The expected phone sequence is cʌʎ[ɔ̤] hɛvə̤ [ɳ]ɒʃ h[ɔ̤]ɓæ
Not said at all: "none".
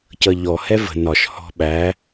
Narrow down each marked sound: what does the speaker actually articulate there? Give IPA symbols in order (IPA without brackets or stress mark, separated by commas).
ɔ, n, ɔ̤